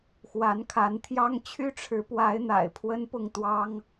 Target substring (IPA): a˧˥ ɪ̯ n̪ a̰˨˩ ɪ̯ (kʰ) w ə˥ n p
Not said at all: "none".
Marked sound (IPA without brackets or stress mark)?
pʰ